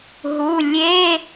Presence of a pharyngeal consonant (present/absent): absent